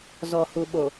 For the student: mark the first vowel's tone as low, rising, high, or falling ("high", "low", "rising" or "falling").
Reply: low